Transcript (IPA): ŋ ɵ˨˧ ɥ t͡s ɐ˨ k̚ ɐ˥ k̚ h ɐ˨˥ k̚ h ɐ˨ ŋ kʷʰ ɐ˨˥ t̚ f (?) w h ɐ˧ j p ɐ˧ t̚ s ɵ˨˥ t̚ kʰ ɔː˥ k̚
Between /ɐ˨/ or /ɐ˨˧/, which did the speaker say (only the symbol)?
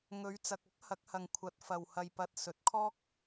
ɐ˨